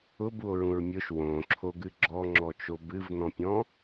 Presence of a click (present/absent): present